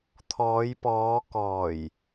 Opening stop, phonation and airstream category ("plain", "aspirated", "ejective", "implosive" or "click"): aspirated